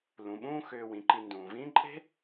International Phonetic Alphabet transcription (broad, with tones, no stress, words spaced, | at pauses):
lũ˩ɓũː˦ xʏː˨ wĩ˩ǃi˨ ndũː˩vĩː˥ ǃʼe̤˥